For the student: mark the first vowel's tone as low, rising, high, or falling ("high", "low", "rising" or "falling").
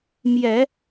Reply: low